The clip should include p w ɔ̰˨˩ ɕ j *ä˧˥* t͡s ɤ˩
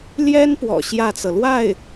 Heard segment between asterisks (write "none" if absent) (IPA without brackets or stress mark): ä˥˩